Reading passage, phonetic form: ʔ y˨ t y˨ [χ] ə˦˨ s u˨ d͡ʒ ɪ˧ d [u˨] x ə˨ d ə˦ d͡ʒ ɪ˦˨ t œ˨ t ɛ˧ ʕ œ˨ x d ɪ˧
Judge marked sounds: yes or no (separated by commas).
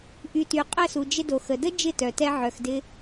no, no